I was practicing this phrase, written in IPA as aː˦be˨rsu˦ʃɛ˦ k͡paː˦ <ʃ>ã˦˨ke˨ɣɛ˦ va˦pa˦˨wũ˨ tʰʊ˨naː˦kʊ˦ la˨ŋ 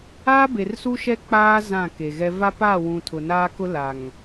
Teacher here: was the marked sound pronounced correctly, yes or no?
no